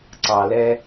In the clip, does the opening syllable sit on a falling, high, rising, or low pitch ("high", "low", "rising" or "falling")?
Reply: low